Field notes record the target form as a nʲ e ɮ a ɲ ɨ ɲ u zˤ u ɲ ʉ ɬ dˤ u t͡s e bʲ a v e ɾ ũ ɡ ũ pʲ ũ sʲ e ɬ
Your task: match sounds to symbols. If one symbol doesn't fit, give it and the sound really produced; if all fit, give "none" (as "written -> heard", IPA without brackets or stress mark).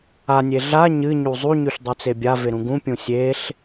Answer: none